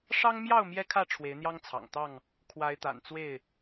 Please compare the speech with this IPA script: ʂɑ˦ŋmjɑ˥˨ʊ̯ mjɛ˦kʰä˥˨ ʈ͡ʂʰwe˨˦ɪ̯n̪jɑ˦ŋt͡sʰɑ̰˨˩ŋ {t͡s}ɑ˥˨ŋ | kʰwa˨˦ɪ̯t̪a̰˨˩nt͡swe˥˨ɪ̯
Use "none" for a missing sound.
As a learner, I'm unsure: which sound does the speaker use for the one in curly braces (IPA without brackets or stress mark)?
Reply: t̪